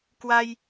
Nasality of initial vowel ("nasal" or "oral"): oral